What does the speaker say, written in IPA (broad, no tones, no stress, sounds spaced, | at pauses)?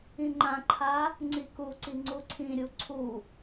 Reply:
ĩ ŋ͡ǃ ã ǃʰ a | ŋ͡ǀ i k u ǀ i ŋ͡ǀ u ǀʰ ĩ ɾʲ u ǀʰ u